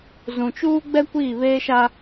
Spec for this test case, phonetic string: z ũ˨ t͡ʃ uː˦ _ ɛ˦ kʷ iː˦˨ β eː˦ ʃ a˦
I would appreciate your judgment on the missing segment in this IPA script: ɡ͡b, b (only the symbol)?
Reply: ɡ͡b